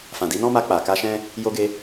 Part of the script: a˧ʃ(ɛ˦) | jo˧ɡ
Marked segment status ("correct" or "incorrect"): incorrect